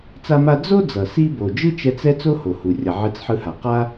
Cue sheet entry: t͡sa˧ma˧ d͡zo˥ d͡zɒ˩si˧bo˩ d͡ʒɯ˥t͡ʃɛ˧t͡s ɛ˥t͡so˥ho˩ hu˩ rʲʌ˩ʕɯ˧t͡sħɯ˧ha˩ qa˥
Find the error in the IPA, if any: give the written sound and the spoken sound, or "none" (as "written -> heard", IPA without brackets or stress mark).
ɒ˩ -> ʌ˩